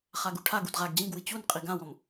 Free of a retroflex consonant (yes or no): no